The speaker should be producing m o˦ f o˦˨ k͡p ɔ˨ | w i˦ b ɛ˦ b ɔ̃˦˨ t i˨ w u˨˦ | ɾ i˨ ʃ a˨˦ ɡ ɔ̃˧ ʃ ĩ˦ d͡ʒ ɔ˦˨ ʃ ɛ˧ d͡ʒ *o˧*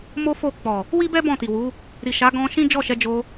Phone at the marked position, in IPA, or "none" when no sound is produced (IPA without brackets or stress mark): o˧